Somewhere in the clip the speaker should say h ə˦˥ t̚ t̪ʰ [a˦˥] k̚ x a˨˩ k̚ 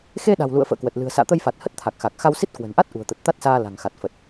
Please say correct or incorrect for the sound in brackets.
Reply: incorrect